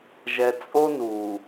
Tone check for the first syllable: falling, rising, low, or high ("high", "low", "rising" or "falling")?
high